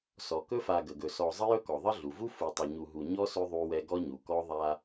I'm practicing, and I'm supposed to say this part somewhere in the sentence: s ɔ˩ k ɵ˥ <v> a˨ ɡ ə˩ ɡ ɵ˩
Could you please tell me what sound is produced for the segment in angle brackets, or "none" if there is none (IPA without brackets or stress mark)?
f